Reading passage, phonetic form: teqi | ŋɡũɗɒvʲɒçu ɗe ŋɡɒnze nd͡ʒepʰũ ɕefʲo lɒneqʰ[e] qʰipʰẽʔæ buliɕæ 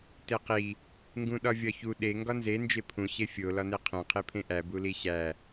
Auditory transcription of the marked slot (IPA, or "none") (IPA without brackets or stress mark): ẽ